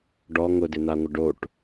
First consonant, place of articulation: retroflex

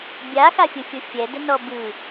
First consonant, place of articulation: labial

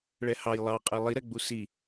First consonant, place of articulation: retroflex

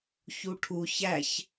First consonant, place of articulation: palatal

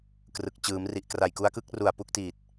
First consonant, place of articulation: velar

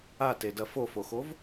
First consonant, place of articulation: alveolar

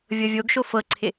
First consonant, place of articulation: labial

